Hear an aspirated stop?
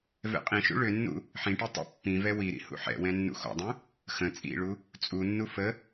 no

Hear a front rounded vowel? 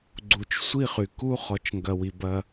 yes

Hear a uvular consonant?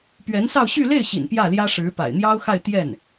no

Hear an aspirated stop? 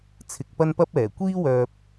yes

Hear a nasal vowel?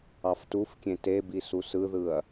yes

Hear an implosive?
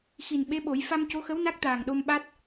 yes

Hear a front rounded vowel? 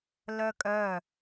yes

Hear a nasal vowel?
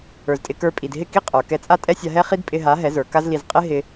no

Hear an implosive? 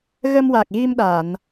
yes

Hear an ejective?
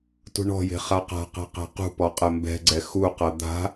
yes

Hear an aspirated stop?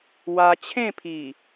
yes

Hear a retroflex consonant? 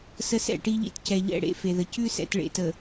yes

